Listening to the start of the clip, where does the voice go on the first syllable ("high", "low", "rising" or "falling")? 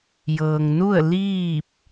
low